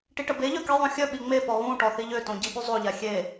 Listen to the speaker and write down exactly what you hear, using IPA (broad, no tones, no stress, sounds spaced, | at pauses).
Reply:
ʈ i ʈ ə b e ʎ œ k i ðˤ õ xʲ œ ɓ i ŋ͡m e p ɔ ɣ ũ ʈ ɔ θ i ʎ ø t õ ɟ i ɓ y zˤ o ʎ a xʲ e